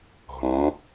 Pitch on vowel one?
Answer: rising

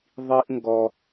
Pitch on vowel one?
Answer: high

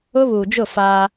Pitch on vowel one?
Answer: high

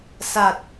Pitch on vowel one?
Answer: low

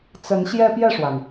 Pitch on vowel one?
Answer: rising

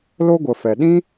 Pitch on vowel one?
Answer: high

